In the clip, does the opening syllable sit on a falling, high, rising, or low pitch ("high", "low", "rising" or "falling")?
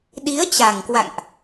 rising